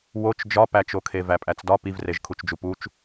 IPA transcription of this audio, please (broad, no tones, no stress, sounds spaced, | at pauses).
w o t͡ʃ d͡ʒ ɒ p æ t͡ʃ o kʰ e v æ pʼ æ t͡s d ɒ p i v r e ʒ kʰ u t͡ʃ d͡ʒ u p u t͡ʃ